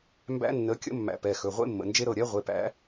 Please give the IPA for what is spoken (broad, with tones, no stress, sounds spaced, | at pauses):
m b æ̰˦˥ nː ə˨˦ kʲ ə̰˦˥ mː æ̰˨˦ p ɛ˩˧˩ x ɵ˩˧˩ ʁʷ ḛ˦˥ mː ə̰˩˧˩ n d͡ʒ e˦˥ ɾ ɤ˩˧˩ ɾʲ ɛ˦˥ ʁʷ e˩˧˩ p æ̰˨˦